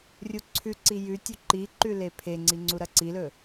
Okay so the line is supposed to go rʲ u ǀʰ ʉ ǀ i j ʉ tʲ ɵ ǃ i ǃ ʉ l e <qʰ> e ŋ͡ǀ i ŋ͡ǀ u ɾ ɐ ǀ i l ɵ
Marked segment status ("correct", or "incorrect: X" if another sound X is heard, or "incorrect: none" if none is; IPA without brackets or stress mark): incorrect: pʰ